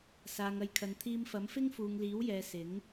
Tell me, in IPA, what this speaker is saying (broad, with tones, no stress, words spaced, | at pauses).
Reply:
saː˨ŋɐ˨˧jkʰɐ˨n t̪ʰiː˧mfɐ˨˥mfɪ˥ŋ fuː˨ŋliː˨˥wjɛː˨ sɪ˨˥ŋ